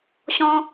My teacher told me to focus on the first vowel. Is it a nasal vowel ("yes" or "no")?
yes